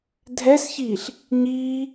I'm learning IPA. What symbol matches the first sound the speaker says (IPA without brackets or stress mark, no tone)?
dʱ